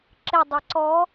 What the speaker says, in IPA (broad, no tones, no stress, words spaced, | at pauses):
ǁɪ dˤeǀɔ